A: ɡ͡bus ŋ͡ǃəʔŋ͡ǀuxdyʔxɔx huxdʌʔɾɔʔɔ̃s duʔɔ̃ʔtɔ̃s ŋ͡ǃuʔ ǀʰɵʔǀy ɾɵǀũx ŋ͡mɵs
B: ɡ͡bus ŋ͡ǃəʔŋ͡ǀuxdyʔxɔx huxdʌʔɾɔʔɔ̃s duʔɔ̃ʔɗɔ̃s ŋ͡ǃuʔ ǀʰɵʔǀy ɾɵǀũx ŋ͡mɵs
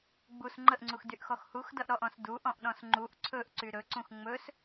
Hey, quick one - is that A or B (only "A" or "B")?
B